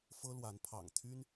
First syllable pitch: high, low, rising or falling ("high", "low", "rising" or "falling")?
high